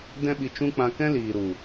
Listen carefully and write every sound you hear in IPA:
d ɛ̃˦ ɓ i˧ t͡ʃ ũ˦ k͡p ã˧ k ɛ̃˦ l iː˨ ɾ u˨

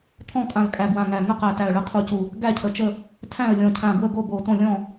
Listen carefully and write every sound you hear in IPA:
t̪ʰ ɔ̃˥˨ kʼ ã˧˩ l kʼ æ˧˩ ɡ w ã˧˩ ŋ æ˧˩ ŋ ə˥˨ q æ˧˩ t æ˧˩ ə̯ ɭ ə˥˨ qʰ u˧˩ c u˧˩ | ɡ æ˥˨ cʰ ə˧˩ t͡ʃ ə˥˨ | tʰ æ̃˥˨ ə̯ lʲ ɔ̃˧˩ cʰ ã˧˩ ɡ w ə˥˨ ɡ o˥˨ b o˧˩ t õ˥˨ lʲ ɔ̃˥˨

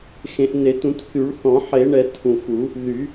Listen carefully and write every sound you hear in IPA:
x ẽ˨˩˦ ʔ n e˨˩˦ t ũ˨˩˦ t θ y˨˩˦ ɭ θ ɔ̃˨˩˦ ħ e˨˩˦ ɳ ɛ˨˩˦ tʰ ũ˨˩ x u˨˩˦ | ð y˨˩˦

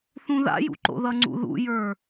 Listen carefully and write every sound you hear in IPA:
θ ũ ð a̰ j ṵ ǃ o̰ ð ʌ ŋ͡ǀ ṵ ð ṵ j ə˞

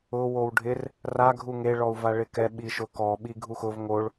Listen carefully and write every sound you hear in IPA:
ʊ w o w ɖʱ ɪ r | r a ɡʱ u ŋ e ɭ ɔ u̯ v a ɭ ɪ k ɛ ɓ i ʃ ʊ k ɔ ɓ i ɡʱ u x ʊ v ŋ o ɭ

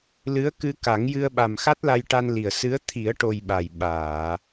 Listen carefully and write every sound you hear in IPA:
l ɨ˧˥ ə̯ k ɨ˧ k a˨˩˦ ŋ j ɨ˧ ə̯ ɓ a˨˩ m x a˦˥ t̚ l a˧ j ʈ a˧ n l i˨˩ ə̯ s ɨ˧˥ ə̯ t̪ʰ i˨˩˦ ə̯ ʈ o˨˩ j ɓ a˨˩ j ɓ aː˨˩˨

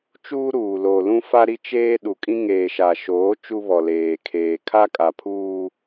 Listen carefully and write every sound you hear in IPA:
t͡ʃ uː˦ ɾ uː˨ l oː˨ l ũ˦ f a˦ ɾ i˦ t͡ʃ eː˦ ɗ u˨ kʼ ĩ˦ ŋ eː˨ ʃ a˨ ʃ oː˨˦ t͡ʃ u˦ β ɔ˨ l eː˨ kʰ eː˨ kʰ a˦ kʼ a˨ pʰ uː˦

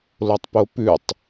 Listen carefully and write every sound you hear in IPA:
l o tˤ p o p ʉ tˤ

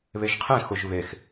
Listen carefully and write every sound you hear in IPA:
β e ʒ qʰ ẽ x ʊ ʒ β e x

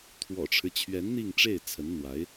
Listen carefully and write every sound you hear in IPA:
t̪ʰ w ɔ̰˨˩ ʈ͡ʂʰ ɻ̩˦ t͡ɕʰ ɥ ɛ˧˥ n n̪ i˥˧ ŋ ʈ͡ʂ e˥˩ ɪ̯ t͡sʰ ə˧˥ n n̪ w a˧˥ ɪ̯

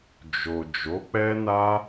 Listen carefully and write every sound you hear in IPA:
d͡ʒ o˨ d͡ʒ o˨˦ k͡p ɛ˦ n a˦

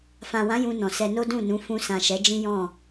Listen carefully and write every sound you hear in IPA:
f ã˨ w ã˨˦ j ũ˧ n ɔ̃˨ s ɛ˧ n o˦ d ũ˦˨ n ũ˨˦ f ũ˧ s ã˨ ʃ ɛ˨˦ d͡ʒ ĩ˦ j ɔ̃˦˨

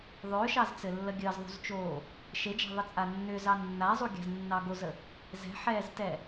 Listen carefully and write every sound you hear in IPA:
ðˤ ʏː ʃ ɑ z t͡s ɘ lː ə ɡʲ əː z ðˤ ṳ z t͡ʃ oː | ʃ e d͡ʒ a̤ ðˤ ə t͡sʼ a nː ʏ z ɑ nː a zˤ u ɡʲ a̤ z nː ɑ ɡ o z ə | z ɛ̤ ħ ɛː z t ɛ

